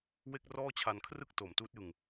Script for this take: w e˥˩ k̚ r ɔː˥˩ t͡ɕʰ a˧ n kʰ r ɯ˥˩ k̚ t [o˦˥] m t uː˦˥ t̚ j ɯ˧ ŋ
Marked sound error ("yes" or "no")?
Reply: yes